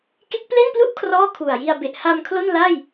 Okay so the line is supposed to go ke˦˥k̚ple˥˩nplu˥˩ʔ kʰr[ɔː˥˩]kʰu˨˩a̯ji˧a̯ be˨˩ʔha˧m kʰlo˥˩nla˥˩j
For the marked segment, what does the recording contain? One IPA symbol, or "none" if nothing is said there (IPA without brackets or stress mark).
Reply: ɔː˥˩